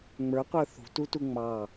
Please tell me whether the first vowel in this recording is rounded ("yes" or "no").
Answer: no